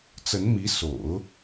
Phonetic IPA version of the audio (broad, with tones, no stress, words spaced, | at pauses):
t͡sə˧˥nmi˧˥ so̰˨˩˦ʊ̯